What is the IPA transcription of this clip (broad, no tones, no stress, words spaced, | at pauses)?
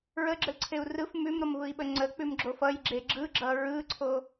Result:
ɹəɡ͡ǁəlǀʰeu̯ rɯf mʉmɾʌmvɯi̯ɓə ŋ͡ǀək͡pʉmɡ͡ǁof ʌjɡ͡ǁe ɡ͡ǁɯɡ͡ǁʌ ɹɯǀʰo